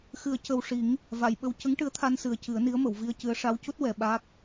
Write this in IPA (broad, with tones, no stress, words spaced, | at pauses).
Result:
xɨ˨˩˦ə̯ cə˨˩wʂi˨˩˦ŋ | va˨˩˨jɓə˧w cə˧˥ŋʈɨ˧˥ə̯t̪ʰa˧nsɨ˨˩˦ə̯ cɨ˨˩˦ə̯ni˧˥ə̯mə˨˩˨w vi˧ə̯cɨ˧˥ə̯ ʂa˧˥wcu˦˥t̚ wɛ˧ ɓaː˦˥k̚